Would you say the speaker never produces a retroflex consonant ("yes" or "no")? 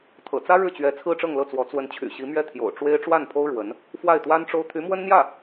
no